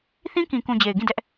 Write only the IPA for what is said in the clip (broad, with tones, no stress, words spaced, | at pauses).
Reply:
θĩ˦kĩ˨kũ˨ d͡ʑe˨ɪ̯ɡĩ˦˨dɛ˦ʔ